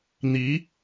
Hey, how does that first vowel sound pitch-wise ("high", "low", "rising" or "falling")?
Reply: rising